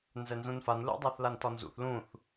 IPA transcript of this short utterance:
n z ɛ n z ũ n f a n l ṵ dˤ a θ l a n t ɒ n z ṵ θ l ũ θ

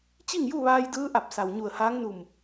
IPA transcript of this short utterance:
t͡ɕ i˥˨ ŋ j u˥˨ ʋ aː˧ j d ɯː˧˥ ʔ a˧˩ p̚ s a˩ w ɲ u˧˩ ə̯ h aː˧˥ ŋ n u˧˩ m

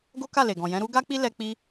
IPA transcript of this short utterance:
ɡ o˦ k a˦˨ l e˨ ɡ ɔ̃˨ j ɛ̃˨˦ ɾ u˦ ɡ a˦ k͡p i˦ l ɛ˧ k͡p i˦

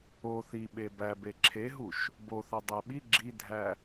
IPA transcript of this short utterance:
o θ i ɓ e b æ b e ǁʰ e ɦ u ʃ | b o θ ɒ dˤ æ ɓ i ɡ͡ǁ i dʱ æ

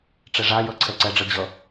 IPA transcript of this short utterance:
ʈ͡ʂ ɛ ʐ a j ʌ ǀʰ ɛ ǀ ɛ ɖ͡ʐ ʌ d͡ʑ ʌ

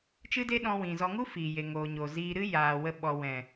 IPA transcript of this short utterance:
t͡ʃ ɨ˦ d e˦ ɗ ɔ̃˧ w ĩ˨ z ɔ˧ ŋ u˦ f iː˨ j e˨ ŋ oː˨ ɲ o˨ z iː˧ ɾ ɨ˦ j aː˨ w ə˧ ɓ ɔ˨ w ɛ̃˨

